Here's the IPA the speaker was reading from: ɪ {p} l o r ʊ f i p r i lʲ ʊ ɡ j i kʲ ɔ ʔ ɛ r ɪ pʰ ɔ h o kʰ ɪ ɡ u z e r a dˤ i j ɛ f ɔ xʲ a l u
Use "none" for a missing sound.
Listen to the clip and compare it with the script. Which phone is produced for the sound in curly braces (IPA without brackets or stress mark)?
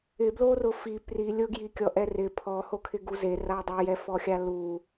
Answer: b